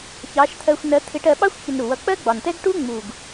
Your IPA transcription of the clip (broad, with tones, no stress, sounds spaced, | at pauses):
ç ɑ˨˥ ʃ t̪ʰ ɜ˧ xʷ n ɜ˨˥ t̪ʰ ɪ˨˥ ʈ ɜ˧ ɓ ɑ˥ xʷ ç ə˧ n ɾ u˨˩ w ʌ˨˥ k͡p ɜ˥ ɡ͡b ɒ˨˩ n t ɛ˥ ɡ ʈ u˥ ŋ͡m u˨˩ ɡ